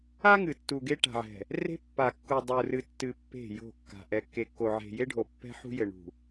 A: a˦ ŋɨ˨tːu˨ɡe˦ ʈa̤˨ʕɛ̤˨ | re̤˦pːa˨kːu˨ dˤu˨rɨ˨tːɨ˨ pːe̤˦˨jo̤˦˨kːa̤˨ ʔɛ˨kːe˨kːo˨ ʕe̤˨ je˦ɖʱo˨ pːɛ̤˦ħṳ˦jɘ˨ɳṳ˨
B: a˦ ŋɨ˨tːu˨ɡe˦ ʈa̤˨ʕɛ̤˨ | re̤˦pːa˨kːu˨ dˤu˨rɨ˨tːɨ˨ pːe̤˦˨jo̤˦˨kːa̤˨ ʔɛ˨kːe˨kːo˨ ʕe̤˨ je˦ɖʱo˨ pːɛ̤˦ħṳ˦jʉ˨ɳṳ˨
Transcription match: A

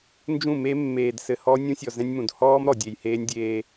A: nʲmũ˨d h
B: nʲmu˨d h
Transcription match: A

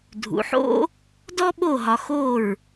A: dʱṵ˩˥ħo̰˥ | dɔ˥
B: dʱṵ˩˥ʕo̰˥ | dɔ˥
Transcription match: A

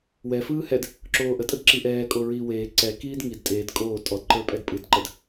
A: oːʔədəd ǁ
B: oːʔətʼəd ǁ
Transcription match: B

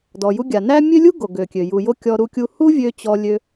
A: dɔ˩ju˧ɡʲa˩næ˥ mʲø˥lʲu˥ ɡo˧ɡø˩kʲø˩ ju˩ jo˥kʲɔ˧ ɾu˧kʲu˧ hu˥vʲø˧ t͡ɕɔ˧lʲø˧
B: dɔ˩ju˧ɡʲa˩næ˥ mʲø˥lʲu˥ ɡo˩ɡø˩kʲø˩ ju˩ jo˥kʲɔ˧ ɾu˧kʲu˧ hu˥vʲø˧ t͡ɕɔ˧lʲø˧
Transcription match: B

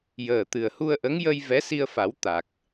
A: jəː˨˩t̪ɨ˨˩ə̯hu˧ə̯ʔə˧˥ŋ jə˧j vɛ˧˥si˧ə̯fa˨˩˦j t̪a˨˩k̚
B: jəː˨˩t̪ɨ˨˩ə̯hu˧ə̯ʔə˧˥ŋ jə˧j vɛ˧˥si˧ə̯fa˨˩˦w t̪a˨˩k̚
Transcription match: B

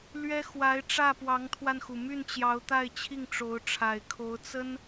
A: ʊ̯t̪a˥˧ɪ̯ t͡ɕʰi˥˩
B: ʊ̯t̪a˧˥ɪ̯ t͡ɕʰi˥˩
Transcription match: A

